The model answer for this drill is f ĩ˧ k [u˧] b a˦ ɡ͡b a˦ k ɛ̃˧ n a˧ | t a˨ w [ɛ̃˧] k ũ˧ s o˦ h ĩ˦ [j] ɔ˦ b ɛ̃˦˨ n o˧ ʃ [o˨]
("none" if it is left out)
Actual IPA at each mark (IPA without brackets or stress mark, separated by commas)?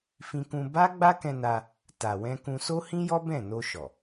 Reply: ũ˧, ɛ̃˧, j, ɔ˨